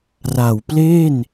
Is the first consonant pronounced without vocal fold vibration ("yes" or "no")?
no